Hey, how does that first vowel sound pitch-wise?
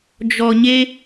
low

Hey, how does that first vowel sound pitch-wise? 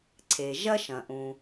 low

